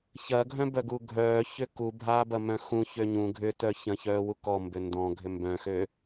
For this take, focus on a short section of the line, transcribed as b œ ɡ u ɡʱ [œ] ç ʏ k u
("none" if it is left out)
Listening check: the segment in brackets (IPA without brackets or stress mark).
œː